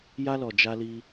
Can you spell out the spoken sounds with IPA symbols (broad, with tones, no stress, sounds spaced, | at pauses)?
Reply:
j a˦ l ɔ˧ d͡ʒ a˦ l i˦